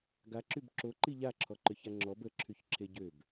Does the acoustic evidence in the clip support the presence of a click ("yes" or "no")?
yes